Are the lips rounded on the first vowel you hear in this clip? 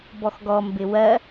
yes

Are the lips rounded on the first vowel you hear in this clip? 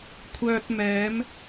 yes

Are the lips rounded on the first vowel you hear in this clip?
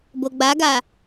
yes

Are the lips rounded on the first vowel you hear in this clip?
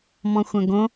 yes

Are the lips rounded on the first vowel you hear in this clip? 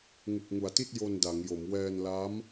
yes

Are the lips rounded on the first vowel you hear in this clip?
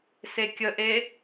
no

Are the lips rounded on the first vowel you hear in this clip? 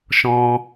yes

